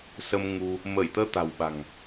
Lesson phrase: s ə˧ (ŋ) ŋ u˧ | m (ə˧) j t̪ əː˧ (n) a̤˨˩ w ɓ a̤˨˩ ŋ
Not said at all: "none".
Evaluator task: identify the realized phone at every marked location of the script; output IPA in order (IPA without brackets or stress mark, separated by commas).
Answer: m, ə˧˩, t̪